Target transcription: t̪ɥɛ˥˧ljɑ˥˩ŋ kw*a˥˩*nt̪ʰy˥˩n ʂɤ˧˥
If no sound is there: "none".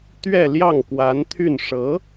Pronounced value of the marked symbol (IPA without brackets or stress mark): a˧˥